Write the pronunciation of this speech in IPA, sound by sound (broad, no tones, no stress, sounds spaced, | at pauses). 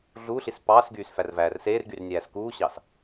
ɮ uː ɬ i s p ɑː s ɡ yː s f æ r v æː r s eː r ɡ y r nʲ æː s k uː ɕ ɑ s